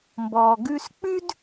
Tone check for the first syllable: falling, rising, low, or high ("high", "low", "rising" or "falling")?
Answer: low